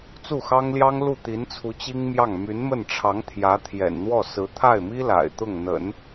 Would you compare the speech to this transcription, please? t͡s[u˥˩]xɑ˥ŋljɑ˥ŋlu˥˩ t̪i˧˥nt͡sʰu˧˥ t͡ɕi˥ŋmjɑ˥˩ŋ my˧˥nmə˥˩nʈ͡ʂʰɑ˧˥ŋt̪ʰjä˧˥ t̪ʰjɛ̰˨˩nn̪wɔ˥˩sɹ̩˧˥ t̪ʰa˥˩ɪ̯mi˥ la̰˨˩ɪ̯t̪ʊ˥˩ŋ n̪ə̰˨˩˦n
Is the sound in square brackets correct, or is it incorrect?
correct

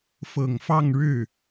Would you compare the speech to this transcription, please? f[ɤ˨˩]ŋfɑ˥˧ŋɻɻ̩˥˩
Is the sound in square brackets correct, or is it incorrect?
correct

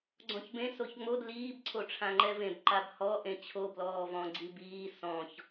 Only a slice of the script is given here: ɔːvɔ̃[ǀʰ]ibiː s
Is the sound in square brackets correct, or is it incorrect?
incorrect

